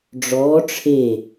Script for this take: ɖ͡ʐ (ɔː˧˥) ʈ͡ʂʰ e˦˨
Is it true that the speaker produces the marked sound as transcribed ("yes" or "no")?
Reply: yes